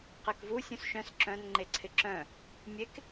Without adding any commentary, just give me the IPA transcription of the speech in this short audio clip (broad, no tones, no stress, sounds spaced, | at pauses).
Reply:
q e k v u sʲ ũ s ʃ œ̃ s ǁ œ̃ n ŋ͡ǃ e ǀʰ ɪ ǁ œ̃ | mʲ e k